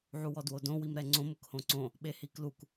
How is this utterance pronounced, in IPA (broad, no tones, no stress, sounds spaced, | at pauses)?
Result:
ʕ u w ɔ d w o d õ w i m ɾ ɛ ŋ͡ǀ õ m ʊ k h õ ǀ õ | ɓ e h i k l u k